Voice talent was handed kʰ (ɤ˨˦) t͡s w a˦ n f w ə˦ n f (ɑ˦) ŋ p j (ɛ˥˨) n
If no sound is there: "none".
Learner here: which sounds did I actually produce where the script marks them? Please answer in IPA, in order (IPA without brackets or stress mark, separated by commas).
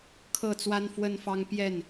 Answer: ɤ˥˨, ɑ˦, ɛ˥˨